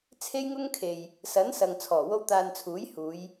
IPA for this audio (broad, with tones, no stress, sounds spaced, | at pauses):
t͡sʰ e˥ j ŋ ʊ˥ ŋ kʰ e˨ j | s ɐ˨˥ n s ɐ˨ ŋ t͡sʰ ɔː˨˩ w o˥ w t̪ aː˧ n t͡sʰ uː˨˥ j h uː˨˧ j